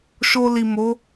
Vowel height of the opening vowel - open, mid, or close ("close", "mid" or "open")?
mid